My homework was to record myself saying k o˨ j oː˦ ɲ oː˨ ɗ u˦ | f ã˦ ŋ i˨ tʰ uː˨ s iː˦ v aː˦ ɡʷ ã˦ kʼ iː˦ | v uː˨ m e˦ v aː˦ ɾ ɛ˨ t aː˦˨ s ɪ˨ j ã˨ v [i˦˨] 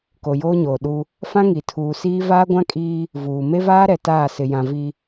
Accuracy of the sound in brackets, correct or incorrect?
incorrect: i˨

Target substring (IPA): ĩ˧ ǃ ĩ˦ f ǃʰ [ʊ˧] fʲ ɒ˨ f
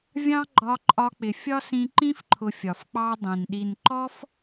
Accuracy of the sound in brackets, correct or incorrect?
correct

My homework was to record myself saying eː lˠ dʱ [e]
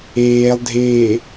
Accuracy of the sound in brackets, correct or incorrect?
incorrect: eː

